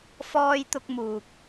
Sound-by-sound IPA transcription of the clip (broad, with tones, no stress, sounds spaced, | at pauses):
f ɔː˥ j t̪ ʊ˥ k̚ m uː˧ k̚